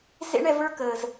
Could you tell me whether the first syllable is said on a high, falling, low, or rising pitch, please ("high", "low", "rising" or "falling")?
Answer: high